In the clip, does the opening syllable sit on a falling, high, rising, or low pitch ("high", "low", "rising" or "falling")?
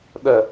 low